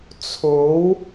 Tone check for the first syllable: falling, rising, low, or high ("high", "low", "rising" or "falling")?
rising